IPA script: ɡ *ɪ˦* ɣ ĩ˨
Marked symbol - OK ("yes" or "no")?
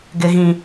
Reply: no